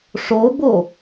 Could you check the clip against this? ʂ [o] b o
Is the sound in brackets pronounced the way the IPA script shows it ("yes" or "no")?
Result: yes